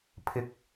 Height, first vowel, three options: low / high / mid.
high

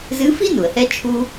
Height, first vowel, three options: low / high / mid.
high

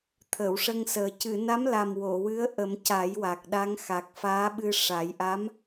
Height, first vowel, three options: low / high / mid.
mid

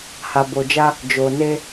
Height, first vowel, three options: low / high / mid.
low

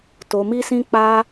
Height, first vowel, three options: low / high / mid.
mid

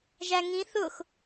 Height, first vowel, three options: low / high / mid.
low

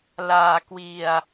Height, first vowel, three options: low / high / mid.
low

